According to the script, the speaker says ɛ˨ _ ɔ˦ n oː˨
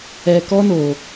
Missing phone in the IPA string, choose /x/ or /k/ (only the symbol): k